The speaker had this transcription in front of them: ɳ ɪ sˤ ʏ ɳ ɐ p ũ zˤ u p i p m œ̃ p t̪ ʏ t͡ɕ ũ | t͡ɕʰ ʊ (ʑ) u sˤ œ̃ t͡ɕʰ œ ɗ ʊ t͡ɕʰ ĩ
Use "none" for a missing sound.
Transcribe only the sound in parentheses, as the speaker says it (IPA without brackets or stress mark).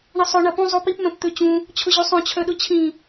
ʑ